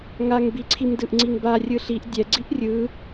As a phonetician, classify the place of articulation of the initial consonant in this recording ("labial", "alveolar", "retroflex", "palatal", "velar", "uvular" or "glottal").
velar